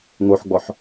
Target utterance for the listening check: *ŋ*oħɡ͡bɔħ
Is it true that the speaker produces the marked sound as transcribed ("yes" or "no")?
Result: yes